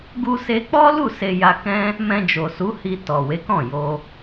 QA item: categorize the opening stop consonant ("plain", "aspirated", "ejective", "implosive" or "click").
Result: plain